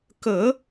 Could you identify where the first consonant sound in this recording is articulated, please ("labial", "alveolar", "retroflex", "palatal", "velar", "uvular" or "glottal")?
velar